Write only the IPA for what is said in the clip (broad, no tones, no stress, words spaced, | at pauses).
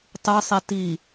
tˤɯsˤi ti